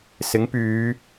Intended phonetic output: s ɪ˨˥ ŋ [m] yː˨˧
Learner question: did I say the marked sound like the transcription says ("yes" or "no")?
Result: no